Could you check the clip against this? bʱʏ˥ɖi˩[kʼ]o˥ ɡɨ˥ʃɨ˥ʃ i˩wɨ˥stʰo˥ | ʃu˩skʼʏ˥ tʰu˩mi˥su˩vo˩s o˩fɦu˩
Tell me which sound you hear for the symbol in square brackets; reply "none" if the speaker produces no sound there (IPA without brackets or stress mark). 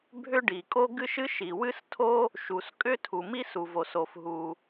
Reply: kʼ